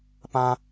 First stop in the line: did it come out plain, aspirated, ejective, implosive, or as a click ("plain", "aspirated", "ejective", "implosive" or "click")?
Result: plain